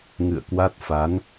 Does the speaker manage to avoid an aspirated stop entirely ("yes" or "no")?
yes